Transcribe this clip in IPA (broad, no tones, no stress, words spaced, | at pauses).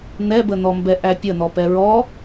n̪ɛbən̪ɔmbɛ ʔæpʲən̪ɔpɛ ɹɔ